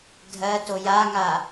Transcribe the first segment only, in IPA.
dʱ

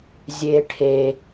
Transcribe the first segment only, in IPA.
zʲ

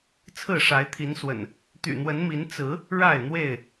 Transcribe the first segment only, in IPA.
t͡sʰ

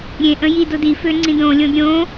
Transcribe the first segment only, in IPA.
ɾʲ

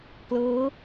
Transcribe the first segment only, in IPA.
k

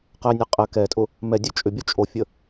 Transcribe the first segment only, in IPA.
q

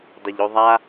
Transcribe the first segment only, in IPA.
dˤ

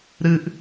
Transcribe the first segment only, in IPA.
ɾ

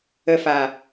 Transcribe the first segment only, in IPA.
ə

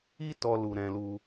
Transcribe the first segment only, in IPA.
i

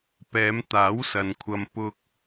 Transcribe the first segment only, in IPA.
p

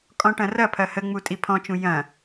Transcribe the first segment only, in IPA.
kʼ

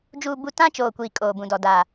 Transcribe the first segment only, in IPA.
d͡ʒ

